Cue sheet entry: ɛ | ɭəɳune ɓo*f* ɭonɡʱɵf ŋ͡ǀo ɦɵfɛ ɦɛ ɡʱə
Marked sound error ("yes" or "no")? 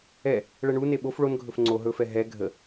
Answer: no